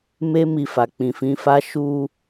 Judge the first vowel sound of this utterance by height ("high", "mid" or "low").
mid